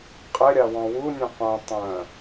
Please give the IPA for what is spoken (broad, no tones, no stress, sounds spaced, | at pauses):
qʼ ɪ ɾʲ a w ɔ̃ w u nʲ œ̃ qʷ œ̃ tˤ œ̃